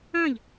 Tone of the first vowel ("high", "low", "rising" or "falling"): falling